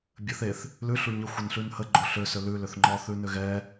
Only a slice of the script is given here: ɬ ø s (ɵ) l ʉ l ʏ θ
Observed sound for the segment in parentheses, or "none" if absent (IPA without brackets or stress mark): ø